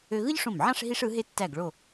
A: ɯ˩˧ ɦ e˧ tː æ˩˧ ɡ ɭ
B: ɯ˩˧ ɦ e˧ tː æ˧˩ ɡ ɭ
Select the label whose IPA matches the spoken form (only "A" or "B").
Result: B